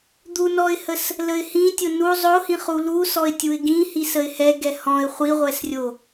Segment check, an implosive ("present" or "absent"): absent